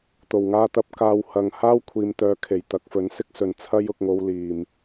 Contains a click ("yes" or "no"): no